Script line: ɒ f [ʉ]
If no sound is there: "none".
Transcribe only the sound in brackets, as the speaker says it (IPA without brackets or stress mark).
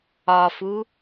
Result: u